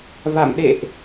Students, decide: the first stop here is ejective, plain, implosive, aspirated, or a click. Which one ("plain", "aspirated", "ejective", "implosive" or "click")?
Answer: implosive